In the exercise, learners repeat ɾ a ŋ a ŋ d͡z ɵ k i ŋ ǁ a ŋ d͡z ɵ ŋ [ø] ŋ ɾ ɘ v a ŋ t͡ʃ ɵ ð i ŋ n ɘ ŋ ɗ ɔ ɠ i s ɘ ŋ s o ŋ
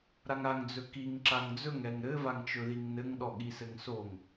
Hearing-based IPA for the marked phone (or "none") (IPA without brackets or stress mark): ɛ